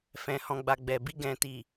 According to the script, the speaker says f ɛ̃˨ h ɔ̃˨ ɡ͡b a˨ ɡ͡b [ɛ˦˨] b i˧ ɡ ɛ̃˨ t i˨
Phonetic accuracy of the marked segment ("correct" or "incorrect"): incorrect